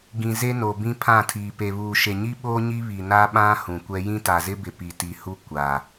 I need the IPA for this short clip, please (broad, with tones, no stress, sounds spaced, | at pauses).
ɡ ĩ˨ z e˦ n o˨ b ĩ˦ pʰ ã˦˨ tʰ iː˨ p e˨ β uː˨ ʃ e˨ ɲ i˦ ɓ oː˦ ɲ i˦ β i˨ n a˦ ɓ ã˦ h ũ˨ kʷ ɛ˦ j ĩ˦ t a˨ z ɪ˦ b ɪ˨ p i˨ t i˨ h u˦ kʷ a˨